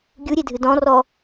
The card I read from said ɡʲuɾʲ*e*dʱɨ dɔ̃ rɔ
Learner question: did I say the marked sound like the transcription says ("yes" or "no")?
yes